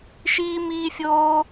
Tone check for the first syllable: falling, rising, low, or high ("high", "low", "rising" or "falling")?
high